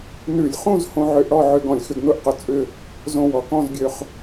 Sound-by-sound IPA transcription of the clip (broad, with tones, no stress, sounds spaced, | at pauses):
n ʉ˧˩˧ lʲ χ ũ˥˧ z h õ˧ ʕ ø˧ ʔ ɽ ɔ˥˧ ʕ ø˧ ɡ ɔ̃˨˩ lʲ x ʏ˧ ɡ n ʊ˥˧ ʔ q ʊ˧ t͡sʼ ʏ˥˧ | z õ˧ w ɔ˩˧ k ɔ̃˥˧ z ɡʲ ø˧ χ